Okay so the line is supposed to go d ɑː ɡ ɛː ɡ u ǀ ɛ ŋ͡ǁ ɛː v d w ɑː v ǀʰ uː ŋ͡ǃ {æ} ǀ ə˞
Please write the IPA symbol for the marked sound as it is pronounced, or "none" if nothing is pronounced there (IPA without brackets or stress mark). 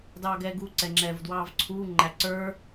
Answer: æ